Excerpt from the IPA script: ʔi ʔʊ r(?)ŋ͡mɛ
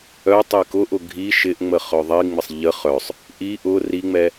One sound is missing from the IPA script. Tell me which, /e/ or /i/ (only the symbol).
i